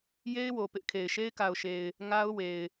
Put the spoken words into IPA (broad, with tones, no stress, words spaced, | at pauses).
je˦ɪ̯ wo˨ pɪ˦ʔkʰe˨ɪ̯ ʃe˦ɪ̯ka˨ʊ̯ʃe˨ɪ̯ | ŋa˦ʊ̯we˨ɪ̯